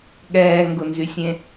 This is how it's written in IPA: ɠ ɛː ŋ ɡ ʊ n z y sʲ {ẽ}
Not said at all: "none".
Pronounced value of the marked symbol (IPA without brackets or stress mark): ẽ